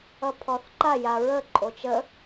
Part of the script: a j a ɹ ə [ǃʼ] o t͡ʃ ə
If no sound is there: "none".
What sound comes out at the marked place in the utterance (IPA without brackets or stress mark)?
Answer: ǃʼ